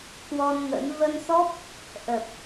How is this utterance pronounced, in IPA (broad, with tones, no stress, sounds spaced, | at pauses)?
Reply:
k w ɔ˧ n ŋ ə̰˧˥ n v ə˧ n s ɔ˦˥ p̚ | ʔ ə˨˩ p̚